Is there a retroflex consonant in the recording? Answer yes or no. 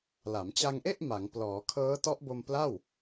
no